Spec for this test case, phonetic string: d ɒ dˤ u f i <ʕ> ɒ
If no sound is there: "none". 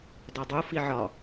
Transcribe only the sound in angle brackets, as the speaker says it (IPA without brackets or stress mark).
ʕ